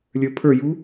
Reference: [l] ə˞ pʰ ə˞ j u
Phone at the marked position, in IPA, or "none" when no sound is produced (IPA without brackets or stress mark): lʲ